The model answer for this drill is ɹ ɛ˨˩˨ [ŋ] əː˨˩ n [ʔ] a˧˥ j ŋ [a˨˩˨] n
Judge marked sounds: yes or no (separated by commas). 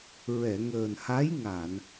yes, no, yes